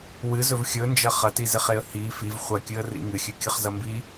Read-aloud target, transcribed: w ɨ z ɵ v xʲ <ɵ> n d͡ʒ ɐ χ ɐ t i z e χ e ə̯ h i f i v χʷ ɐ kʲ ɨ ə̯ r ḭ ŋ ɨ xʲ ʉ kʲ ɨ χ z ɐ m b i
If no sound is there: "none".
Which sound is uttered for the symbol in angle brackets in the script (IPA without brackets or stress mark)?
ɵ